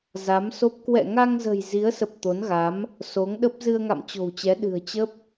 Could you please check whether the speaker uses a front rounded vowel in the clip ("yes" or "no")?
no